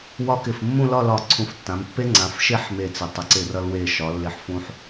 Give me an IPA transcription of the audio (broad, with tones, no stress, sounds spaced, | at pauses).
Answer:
w ɒ˥ k ɪ˧˩ f mː ũ˥˧ l ɒ˥˧ l ɒ˧˩ ǀʰ ũ˧˩ f tː ã˩˧ m pː e˥ ŋ͡ǀ ã˩˧ f ʃ e˥ ħ m e˧˩ t͡s ɪ˩˧ tˤ ɪ˩˧ ǀ ɪ˧˩ r ʌ˧ l w e˧˩ ʃ ɒ˩˧ lː ɪ˧˩ ħ f ũ˧ ħ